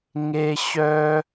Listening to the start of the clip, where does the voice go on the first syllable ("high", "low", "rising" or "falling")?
high